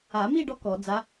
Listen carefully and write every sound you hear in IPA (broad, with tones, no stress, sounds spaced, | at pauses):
a˨˩˦ m i˥˧ ɖ ɔ˧˥ k ɔ˨˩˦ d͡z a˧˥